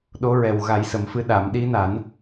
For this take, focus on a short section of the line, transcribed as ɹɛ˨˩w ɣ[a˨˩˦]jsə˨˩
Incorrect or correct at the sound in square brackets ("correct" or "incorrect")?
correct